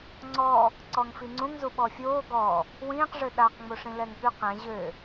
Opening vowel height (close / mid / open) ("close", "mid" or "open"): mid